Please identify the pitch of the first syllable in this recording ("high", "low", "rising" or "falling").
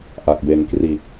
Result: low